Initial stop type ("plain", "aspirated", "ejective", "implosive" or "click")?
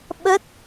implosive